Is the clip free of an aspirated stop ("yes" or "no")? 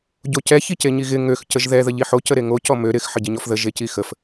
yes